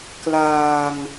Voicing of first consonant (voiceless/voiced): voiceless